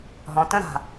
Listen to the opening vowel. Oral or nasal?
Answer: nasal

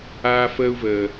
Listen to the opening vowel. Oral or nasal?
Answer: oral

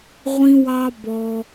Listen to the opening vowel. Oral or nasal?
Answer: nasal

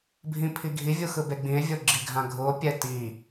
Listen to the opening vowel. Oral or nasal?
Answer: nasal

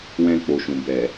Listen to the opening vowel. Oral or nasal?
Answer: nasal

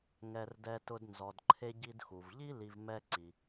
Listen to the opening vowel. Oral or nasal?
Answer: oral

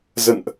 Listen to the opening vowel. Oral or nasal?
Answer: oral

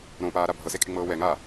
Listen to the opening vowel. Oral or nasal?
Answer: nasal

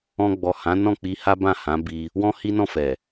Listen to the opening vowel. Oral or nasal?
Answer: nasal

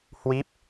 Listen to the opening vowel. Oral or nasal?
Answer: oral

